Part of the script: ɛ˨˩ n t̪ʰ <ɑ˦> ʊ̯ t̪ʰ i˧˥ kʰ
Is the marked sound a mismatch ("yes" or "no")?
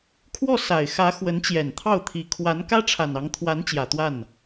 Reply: yes